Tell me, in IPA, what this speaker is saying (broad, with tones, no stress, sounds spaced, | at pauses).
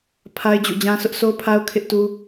pʰ a˦ ɪ̯ d͡ʑ ṵ˦˨ d͡ʑ ã˦ s ʊ˦ ʔ sʰ o˦ pʰ a˦ ʊ̯ kʰ ɪ˦ ʔ t u˦